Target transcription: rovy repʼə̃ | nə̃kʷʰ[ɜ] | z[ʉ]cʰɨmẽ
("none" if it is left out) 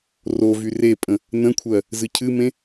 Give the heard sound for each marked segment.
ɜ, ɨ

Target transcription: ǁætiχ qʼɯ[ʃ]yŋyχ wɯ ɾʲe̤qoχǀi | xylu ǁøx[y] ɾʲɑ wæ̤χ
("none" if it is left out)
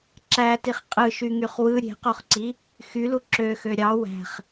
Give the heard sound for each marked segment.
ʃ, ø

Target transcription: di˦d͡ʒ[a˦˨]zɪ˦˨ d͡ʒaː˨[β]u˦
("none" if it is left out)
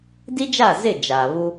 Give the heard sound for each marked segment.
a˦˨, β

